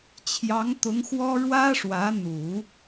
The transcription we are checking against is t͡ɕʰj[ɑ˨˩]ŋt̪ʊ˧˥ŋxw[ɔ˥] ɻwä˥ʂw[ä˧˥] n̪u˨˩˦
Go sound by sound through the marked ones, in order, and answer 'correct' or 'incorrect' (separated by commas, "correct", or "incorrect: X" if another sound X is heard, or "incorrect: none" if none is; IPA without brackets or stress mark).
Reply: incorrect: ɑ˧˥, correct, correct